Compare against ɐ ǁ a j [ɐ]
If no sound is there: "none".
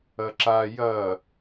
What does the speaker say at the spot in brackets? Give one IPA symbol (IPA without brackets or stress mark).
ɐ